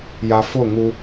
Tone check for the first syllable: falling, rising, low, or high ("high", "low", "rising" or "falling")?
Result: low